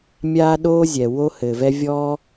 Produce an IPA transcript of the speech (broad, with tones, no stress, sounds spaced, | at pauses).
mʲ aː˦ ɗ oː˦ zʲ ɛ˨ w o˦ h ɘː˨ v ɛ˦ vʲ ɔː˦